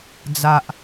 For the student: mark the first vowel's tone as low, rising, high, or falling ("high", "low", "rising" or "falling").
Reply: low